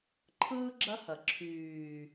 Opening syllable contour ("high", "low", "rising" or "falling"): high